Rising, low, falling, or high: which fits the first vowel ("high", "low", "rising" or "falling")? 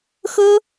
high